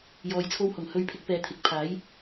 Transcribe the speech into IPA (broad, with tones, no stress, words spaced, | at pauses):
jɔː˨j t͡sʰo˧whʊ˨˩ŋ hɵ˨˧ɥpʰɪ˨˥k̚ pɛː˨˧t̪ʰɪ˨k̚pʰaː˨˥j